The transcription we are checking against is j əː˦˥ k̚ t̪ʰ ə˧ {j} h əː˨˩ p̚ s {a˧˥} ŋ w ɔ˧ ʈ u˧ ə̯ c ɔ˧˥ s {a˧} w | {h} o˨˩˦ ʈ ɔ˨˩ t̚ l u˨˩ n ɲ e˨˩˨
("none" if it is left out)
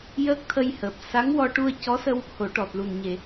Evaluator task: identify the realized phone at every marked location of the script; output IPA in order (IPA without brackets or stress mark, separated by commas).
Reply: j, a˧˥, ə˧, h